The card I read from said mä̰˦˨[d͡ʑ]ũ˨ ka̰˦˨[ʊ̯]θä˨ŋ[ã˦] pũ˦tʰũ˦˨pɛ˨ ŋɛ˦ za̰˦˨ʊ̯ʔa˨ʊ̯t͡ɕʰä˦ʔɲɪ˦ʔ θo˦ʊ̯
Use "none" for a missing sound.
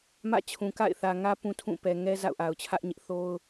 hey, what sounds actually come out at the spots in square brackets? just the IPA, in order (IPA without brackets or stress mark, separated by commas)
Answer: t͡ɕʰ, ɪ̯, ä˦